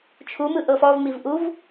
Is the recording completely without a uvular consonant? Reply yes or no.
yes